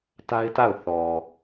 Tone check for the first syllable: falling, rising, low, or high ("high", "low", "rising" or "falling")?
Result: high